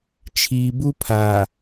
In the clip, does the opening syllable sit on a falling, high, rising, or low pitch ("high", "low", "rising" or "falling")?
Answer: low